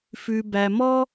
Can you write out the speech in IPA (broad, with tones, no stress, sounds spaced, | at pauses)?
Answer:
f ʉ˧ b æ˧ m ɔ˦